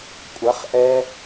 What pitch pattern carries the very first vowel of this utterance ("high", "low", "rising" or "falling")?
rising